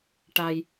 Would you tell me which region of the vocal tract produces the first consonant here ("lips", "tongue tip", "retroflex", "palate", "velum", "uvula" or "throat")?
retroflex